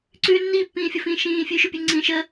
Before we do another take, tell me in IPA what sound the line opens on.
ǀ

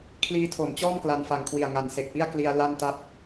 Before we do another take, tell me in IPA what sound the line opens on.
kʰ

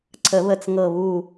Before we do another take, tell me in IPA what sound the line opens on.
ǀʰ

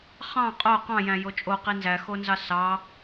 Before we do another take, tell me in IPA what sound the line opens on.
χ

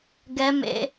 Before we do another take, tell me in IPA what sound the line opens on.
ɡ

